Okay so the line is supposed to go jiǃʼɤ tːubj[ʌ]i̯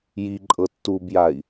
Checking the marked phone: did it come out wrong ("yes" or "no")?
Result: yes